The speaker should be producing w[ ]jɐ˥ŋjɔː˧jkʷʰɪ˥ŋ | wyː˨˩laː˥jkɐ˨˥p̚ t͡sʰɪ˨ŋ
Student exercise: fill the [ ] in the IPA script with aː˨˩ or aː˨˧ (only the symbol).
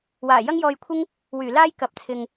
aː˨˩